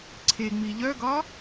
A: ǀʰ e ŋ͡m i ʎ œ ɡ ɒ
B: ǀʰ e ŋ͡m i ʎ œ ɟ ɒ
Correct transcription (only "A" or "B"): A